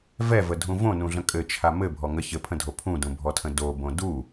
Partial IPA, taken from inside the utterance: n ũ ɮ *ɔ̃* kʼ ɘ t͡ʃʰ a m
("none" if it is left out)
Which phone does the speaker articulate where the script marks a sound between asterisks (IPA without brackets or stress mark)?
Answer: ə̃